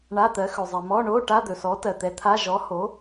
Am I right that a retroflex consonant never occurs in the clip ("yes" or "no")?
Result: no